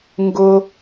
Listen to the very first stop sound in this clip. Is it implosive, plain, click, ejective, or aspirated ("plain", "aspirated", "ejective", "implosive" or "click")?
plain